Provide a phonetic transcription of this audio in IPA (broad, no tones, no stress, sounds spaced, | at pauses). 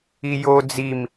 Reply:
i j o d͡z i m